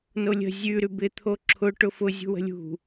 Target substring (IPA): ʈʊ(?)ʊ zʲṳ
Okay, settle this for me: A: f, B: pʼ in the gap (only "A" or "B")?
A